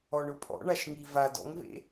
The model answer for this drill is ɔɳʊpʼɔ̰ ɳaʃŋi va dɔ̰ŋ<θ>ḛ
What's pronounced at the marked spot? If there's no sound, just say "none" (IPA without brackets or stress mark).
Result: v